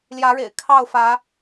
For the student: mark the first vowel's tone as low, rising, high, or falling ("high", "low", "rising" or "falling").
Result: rising